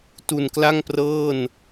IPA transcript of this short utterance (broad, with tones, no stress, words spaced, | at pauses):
tu˨˩nkla˥˩ŋprɤː˥˩n